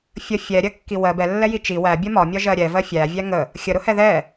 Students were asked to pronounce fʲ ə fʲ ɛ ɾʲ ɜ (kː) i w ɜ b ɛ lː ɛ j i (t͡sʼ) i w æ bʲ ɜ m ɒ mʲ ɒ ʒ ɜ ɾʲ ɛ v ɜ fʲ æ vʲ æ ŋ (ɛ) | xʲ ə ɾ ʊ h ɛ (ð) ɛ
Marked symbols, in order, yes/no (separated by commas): yes, no, no, yes